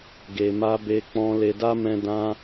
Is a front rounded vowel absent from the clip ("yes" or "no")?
yes